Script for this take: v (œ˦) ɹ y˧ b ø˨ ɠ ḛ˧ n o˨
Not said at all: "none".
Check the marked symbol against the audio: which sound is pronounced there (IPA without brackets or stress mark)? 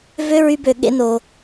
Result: ø˦